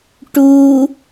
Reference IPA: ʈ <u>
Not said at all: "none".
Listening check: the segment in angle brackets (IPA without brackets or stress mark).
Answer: u